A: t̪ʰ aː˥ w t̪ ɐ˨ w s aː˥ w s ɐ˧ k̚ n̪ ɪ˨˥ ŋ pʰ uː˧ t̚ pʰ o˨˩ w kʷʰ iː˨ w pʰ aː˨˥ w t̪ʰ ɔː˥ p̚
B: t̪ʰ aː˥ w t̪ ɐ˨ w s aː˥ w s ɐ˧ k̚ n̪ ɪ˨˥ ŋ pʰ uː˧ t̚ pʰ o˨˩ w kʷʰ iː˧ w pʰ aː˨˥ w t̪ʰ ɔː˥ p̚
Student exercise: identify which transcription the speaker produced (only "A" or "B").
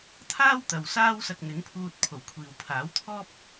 A